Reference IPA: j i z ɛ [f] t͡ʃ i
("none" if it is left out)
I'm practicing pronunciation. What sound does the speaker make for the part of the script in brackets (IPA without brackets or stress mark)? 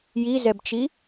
b